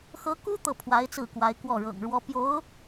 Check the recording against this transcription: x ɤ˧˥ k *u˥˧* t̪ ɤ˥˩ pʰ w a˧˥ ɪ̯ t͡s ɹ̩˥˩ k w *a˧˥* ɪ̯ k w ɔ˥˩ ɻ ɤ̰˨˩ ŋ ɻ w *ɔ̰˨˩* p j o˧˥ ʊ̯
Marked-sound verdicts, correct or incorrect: incorrect: u˥, correct, incorrect: ɔ˥

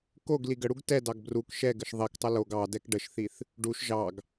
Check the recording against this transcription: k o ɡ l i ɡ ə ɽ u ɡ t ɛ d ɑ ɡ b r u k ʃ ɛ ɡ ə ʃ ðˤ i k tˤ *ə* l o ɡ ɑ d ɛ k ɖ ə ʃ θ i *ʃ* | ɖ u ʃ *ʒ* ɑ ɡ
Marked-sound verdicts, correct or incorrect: correct, incorrect: θ, correct

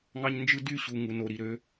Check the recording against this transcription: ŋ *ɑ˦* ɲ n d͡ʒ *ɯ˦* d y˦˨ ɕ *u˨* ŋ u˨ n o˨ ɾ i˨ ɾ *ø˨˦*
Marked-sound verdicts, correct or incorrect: correct, correct, correct, correct

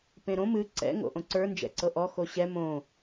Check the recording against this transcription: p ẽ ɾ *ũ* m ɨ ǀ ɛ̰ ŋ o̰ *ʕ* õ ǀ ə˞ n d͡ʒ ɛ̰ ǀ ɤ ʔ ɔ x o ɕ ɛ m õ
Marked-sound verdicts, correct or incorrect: incorrect: õ, incorrect: ʔ

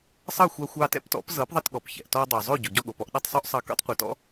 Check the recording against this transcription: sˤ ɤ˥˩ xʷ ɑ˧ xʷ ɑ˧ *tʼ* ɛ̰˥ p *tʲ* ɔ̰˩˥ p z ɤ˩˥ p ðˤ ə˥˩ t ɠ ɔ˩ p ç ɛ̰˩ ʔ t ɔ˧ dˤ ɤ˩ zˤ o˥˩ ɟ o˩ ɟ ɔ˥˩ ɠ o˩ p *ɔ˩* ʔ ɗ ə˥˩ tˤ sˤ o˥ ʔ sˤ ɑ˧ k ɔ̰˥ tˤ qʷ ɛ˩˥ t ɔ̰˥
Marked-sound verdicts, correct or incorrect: incorrect: t, incorrect: t, incorrect: ɔ˧

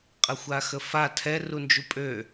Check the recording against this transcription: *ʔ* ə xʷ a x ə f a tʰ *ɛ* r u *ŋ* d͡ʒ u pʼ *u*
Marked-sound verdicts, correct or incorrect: incorrect: qʼ, correct, incorrect: n, incorrect: ø

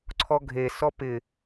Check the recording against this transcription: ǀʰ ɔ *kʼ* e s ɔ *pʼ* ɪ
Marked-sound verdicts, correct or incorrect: incorrect: ɡʱ, incorrect: p

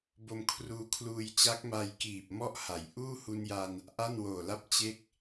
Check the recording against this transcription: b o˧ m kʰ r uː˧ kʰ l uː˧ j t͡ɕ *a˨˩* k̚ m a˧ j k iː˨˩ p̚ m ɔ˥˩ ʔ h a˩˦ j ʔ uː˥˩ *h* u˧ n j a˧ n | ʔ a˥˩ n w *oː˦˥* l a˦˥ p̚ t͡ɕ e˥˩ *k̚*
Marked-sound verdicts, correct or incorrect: incorrect: a˦˥, correct, incorrect: oː˨˩, correct

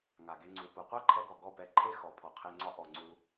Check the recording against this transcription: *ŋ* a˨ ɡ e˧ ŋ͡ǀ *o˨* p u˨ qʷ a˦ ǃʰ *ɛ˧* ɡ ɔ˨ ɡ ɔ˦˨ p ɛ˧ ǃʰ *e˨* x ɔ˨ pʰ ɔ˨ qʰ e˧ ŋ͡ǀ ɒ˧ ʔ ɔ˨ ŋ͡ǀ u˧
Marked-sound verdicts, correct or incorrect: correct, incorrect: u˨, correct, incorrect: e˦

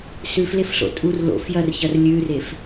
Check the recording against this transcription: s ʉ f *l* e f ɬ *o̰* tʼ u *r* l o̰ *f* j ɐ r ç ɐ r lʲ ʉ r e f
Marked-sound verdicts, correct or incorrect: correct, correct, correct, correct

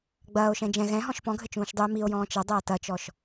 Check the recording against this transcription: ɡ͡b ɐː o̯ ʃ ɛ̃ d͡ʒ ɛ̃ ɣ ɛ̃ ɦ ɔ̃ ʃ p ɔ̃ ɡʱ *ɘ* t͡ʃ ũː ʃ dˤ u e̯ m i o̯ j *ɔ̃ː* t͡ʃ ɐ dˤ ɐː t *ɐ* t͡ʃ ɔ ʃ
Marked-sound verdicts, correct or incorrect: correct, correct, correct

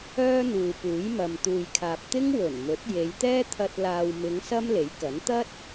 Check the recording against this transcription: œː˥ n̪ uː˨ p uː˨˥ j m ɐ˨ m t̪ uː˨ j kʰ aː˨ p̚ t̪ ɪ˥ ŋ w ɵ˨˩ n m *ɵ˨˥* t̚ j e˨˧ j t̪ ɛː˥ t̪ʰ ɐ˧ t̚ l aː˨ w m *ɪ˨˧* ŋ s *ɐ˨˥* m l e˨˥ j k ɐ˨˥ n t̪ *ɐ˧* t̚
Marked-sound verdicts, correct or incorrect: correct, correct, incorrect: ɐ˥, incorrect: ɐ˥

